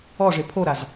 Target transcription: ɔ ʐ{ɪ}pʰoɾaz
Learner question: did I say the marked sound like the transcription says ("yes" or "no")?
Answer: yes